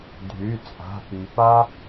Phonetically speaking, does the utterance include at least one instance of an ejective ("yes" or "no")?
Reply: yes